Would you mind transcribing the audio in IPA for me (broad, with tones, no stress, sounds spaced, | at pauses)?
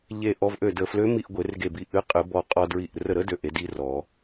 ʎ e˧˩ ʔ ɔ˧ v ʔ ø˧˩ d ə˧˩ f l ø˧˥ m i˧ ʔ ɡʷ e˨˩˦ r ɡ e˧˩ b i˧˩ ʔ ɨ˧˥ qʼ ɨ˨˩˦ b ɔ˧˩ qʼ ɔ˧ d ɹ i˧˩ ʔ r ə˧˩ ɾ ə˧˥ d ø˧˩ ʔ e˨˩˦ d i˧˥ r ɔ˨˩˦